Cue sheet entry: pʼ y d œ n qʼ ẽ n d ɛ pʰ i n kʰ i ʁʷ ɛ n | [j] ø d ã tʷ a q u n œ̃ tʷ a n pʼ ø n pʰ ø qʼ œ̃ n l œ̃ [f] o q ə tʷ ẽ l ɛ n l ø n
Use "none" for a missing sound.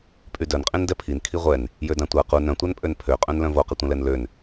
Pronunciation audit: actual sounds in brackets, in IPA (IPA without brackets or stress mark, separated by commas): j, v